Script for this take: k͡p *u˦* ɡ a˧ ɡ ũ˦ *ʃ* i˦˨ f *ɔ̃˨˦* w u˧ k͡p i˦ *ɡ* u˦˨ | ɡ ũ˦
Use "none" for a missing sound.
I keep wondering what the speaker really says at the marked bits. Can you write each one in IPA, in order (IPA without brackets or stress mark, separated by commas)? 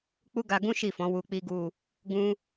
u˦, ʃ, ɔ̃˨˦, ɡ